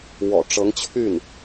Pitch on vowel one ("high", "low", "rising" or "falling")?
low